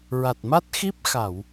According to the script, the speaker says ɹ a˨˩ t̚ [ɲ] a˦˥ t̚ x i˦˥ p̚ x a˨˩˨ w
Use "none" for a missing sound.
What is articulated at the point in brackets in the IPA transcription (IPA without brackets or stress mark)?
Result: m